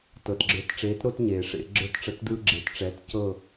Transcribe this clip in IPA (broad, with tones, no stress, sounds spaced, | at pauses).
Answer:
t ɤ˩ t ɡ͡ǁ ə˞˨˥ t ʈ͡ʂ eː˨˥ t ɾ o˦ t ɲ eː˩ ʂ ḛ˧˩˧ ɡ͡ǁ ə˞˦˨ t ʈ͡ʂ ə˧˩˧ t d ɯː˦ ɡ͡ǁ e˨˥ t ʈ͡ʂ ɛ˨˥ t c ɤ˦˨